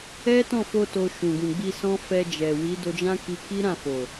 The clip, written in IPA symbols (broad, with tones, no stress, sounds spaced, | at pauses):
ɛ˦ t ɔ̃˦˨ f o˧ t o˧ ʃ ũ˨ ɡ ũ˨ ɡ͡b i˧ s ɔ̃˦ f ɛ˧ d͡ʒ ɛ˨ w i˨˦ d o˧ d͡ʒ ã˦ k i˧ k i˦ ɾ ã˦˨ f o˨